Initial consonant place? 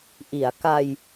glottal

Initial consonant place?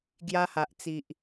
velar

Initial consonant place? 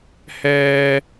glottal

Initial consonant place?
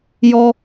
palatal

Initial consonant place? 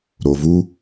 alveolar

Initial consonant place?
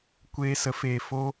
velar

